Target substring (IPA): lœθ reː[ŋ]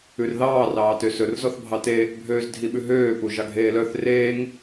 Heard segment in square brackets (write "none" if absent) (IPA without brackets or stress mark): ŋ